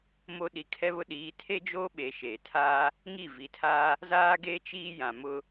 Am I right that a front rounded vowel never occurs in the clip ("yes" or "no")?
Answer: yes